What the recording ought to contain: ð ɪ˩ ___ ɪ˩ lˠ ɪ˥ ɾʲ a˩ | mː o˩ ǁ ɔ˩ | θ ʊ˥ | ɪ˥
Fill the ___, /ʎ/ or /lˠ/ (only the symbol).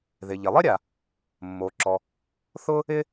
ʎ